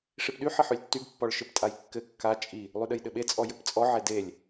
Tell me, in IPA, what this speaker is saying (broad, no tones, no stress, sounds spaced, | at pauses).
ʂ i p ɗ y ħ ɘ ħ y lʲ tː y ɡ pː ɔ ɭ ʃ ɘ p tʼ a j kː ɘ kː a t͡ʃʼ i | lˠ y ɗ ɘ j ɗ ɘ ɓ e t͡sʼ ɔ j ɘ p t͡sʼ ɔ ʕ e d e lʲ